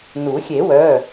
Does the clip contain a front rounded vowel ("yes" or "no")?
yes